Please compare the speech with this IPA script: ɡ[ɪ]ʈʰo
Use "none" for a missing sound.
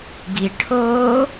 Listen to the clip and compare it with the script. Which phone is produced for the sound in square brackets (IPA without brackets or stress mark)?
i